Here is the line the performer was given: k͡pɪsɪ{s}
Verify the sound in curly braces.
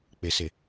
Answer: incorrect: none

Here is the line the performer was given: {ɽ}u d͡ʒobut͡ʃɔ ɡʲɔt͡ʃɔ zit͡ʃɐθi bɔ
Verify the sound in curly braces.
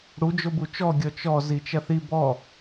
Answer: correct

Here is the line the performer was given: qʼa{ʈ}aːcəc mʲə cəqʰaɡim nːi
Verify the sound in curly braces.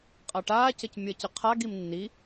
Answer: correct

